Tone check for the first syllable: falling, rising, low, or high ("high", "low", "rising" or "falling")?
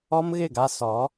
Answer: high